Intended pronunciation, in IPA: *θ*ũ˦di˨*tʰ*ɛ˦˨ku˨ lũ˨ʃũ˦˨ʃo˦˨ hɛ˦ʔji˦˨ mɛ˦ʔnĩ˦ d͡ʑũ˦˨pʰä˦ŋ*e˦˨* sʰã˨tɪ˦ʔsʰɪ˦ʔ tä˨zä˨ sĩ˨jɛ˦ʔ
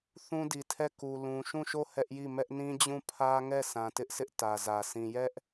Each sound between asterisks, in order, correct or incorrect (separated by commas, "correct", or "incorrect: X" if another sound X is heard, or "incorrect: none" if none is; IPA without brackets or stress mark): correct, correct, incorrect: ɛ˦˨